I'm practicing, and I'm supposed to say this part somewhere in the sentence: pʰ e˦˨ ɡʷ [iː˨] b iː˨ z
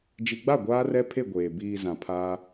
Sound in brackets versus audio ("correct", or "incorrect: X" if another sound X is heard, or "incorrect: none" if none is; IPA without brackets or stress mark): incorrect: eː˨